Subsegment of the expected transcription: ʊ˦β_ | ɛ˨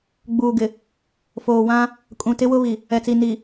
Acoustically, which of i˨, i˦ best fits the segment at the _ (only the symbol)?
i˨